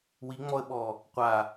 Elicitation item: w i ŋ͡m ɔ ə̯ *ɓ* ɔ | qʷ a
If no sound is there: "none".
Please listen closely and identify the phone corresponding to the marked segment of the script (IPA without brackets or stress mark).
ɓ